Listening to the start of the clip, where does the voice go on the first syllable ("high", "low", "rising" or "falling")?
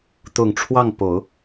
low